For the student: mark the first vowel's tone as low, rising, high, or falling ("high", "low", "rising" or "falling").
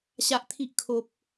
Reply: high